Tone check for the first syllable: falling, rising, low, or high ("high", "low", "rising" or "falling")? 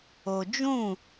low